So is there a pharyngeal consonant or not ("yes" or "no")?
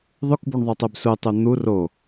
no